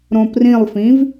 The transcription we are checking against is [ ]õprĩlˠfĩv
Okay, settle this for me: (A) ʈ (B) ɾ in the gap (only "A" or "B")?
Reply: B